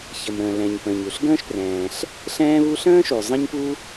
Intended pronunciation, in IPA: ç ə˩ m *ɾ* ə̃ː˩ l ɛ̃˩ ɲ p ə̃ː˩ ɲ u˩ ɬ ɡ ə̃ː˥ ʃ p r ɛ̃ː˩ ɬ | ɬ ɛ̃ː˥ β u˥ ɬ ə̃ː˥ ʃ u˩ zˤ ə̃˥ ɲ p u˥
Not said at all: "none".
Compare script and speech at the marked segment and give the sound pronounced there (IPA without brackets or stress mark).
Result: ɾ